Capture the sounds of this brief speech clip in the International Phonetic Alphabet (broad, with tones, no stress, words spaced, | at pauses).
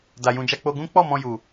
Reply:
da˨jũ˨d͡ʒa˧ k͡po˧ɡũ˦ k͡pɔ˦˨ mɔ̃˧ju˨